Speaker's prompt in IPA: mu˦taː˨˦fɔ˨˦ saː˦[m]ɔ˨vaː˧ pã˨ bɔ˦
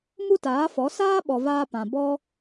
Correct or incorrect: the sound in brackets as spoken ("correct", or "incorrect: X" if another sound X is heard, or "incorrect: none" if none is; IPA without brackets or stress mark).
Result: incorrect: ɓ